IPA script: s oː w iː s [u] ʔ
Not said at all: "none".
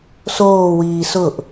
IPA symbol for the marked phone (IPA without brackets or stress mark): ʊ